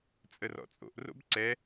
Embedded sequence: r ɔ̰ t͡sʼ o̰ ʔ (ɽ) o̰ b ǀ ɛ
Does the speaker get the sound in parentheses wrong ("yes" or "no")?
yes